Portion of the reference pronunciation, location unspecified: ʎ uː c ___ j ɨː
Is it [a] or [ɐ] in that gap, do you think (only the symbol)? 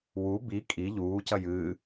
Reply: ɐ